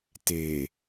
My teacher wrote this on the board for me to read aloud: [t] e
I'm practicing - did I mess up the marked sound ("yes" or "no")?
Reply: no